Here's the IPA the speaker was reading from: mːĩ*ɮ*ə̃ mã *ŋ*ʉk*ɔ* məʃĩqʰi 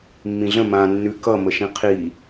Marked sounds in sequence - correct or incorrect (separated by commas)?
correct, incorrect, incorrect